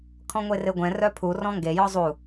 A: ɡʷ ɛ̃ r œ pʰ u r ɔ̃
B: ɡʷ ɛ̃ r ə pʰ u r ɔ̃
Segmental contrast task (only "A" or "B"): A